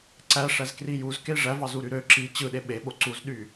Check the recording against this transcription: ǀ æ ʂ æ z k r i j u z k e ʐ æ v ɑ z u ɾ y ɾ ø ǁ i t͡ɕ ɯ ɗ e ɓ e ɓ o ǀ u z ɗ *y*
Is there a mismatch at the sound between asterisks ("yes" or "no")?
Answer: no